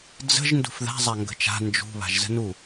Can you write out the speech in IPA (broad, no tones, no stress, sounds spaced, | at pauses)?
d͡z ə̤ ʒ n d ṳ f ð a̤ zˤ a ŋ ɡ ə̤ t͡ʃ a̤ n d͡ʒ ṳ β a̤ ʒ z ə̤ n u